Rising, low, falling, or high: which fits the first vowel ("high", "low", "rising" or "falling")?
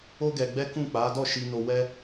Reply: high